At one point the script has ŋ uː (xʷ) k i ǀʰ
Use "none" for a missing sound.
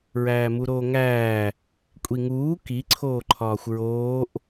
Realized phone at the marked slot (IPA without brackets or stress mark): none